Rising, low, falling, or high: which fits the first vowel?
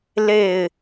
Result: falling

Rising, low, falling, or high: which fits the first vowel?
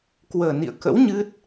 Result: low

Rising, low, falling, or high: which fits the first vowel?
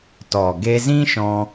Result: low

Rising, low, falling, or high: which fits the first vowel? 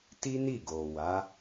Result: high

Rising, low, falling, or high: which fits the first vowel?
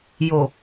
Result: low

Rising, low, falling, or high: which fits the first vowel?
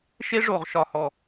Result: high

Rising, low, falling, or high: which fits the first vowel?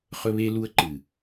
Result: high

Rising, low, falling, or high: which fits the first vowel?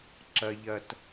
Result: low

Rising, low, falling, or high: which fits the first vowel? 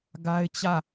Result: high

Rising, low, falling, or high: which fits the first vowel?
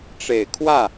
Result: low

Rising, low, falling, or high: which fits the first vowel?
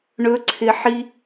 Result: rising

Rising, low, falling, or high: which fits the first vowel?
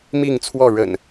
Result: falling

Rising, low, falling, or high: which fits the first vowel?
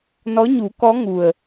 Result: rising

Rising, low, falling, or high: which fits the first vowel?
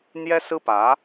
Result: high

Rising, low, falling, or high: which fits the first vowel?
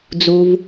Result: low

